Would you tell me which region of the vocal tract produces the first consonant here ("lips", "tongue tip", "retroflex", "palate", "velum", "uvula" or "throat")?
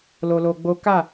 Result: tongue tip